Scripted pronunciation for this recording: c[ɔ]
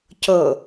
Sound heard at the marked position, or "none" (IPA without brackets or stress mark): ɤ